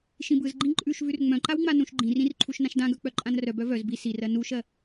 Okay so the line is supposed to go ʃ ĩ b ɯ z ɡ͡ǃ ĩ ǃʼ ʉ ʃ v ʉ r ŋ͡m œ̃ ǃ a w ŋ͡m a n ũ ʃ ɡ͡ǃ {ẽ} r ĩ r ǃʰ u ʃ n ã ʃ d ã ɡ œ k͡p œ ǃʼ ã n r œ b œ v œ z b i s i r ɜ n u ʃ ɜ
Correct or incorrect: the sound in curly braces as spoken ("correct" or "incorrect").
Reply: incorrect